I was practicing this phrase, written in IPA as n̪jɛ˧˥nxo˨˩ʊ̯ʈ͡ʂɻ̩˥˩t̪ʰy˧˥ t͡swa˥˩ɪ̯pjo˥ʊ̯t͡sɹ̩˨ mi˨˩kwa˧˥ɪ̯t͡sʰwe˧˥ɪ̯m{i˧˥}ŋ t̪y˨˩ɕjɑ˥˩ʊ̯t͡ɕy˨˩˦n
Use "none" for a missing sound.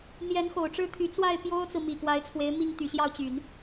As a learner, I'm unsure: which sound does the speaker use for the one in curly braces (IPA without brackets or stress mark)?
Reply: i˥˩